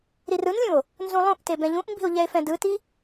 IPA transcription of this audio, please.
ɾ i r ɯ n lʲ ũ o̯ | n z ũ lˠ ũ ʔ t e b ɛ̃ ʎ ũ ʔ m b i̤ o̯ ʎ ɛ e̯ f ɛ̃ d ɯ t i

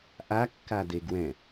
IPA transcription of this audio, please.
ʔ a kː a d e ɡ w ɛ̃

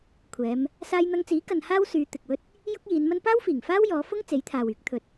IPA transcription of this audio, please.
kʷʰ ɛː˨˧ m | s aː˧ j n̪ ɐ˧ ŋ t͡s iː˨˥ k ɐ˧ n h aː˥ w s yː˨˧ t̪ ɪ˨ k̚ w ɵ˥ t̚ | j ʊ˥ k̚ j iː˨˧ n m ɐ˥ n p aː˥ w f iː˨˩ ŋ f aː˥ w j ɔː˨˧ f ʊ˥ ŋ t͡s e˨˥ j t̪ʰ aː˨ w yː˨˥ k̚ t̪ʰ ɵ˧ t̚

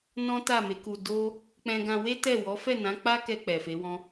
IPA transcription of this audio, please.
n ɔ̃˦ t a˦˨ m e˨˦ k u˧ d o˦ | k͡p ɛ̃˧ ɡ ã˧ w e˦ t ɛ˦˨ w ɔ˨˦ f ɛ˦˨ n ã˨˦ k͡p a˦ k ɛ˧ k͡p ɛ˨ f e˨˦ w ɔ̃˦

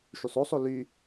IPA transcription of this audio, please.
ʃ y sˤ o sˤ o l y

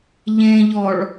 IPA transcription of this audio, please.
ʎ ẽ ʎ ɔ ɭ

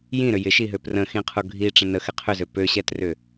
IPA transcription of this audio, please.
j ĩ ɾ ʏ j ɪ ʃ i ɦ ø p r ə̃ x ĩ qʰ u ɡʱ i ʈ͡ʂ ə̃ n ə x ɪ qʰ ʏ z ø p ø ɕ ɛ t r ʏ

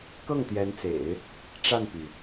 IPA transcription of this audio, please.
k ɤ˥˩ ŋ t̪ j ɛ˧˥ n t͡s ḛ˨˩˦ ɪ̯ | ʈ͡ʂ a˥˩ n p y˩

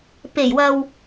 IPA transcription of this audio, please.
p e˨˩ j w ɐ˨ w

